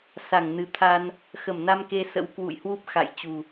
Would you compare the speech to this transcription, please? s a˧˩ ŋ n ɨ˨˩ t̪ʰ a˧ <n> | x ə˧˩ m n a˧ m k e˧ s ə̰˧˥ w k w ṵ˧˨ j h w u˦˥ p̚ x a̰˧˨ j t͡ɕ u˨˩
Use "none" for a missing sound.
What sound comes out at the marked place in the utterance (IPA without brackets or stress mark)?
n